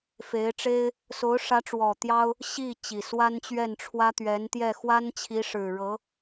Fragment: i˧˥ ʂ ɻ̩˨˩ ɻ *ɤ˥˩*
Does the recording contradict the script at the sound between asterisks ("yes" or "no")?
yes